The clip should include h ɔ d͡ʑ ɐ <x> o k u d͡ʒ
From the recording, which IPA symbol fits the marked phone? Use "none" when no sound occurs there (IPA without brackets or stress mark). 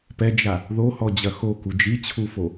x